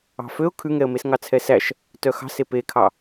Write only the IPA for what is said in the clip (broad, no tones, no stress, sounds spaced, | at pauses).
ɑ̤ f ø ʊ̯ kʰ ʉ ŋ ɛ ə̯ m e s ŋ ɑ t͡sʰ ɛ s æ ʃ | t œ x ɑ̤ s e p e kʰ ɑ